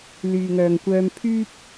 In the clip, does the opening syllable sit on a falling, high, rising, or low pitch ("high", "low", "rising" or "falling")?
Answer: low